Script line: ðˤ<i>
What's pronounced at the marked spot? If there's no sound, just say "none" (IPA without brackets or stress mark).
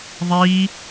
iː